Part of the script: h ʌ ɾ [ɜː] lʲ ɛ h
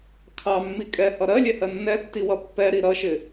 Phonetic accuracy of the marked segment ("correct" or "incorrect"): incorrect